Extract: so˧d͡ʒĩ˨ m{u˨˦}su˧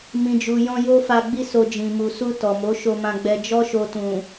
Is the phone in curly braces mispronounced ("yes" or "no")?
yes